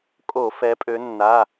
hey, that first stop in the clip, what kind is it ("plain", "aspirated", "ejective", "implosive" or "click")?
ejective